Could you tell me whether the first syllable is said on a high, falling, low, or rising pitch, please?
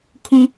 low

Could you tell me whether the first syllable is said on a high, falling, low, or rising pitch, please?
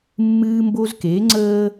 high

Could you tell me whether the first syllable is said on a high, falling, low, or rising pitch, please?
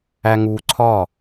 low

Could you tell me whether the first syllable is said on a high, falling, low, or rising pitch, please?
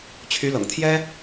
rising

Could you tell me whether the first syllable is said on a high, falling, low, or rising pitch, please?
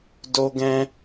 high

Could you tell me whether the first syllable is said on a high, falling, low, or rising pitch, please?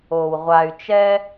low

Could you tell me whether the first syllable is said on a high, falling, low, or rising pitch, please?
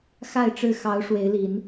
falling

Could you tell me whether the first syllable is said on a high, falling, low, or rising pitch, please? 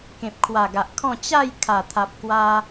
low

